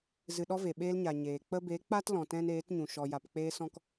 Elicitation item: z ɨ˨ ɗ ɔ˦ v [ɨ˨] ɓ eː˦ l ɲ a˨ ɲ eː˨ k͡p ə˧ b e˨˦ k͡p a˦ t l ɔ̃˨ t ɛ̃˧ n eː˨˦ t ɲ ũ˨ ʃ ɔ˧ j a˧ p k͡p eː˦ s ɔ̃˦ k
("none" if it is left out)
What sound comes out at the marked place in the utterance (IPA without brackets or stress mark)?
e˨